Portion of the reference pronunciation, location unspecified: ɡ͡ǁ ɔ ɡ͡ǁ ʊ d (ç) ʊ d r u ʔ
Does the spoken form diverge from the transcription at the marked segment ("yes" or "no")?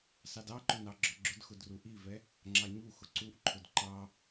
yes